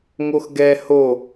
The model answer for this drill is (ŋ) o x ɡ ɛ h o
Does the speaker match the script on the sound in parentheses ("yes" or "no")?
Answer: yes